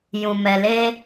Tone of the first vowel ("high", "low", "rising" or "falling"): low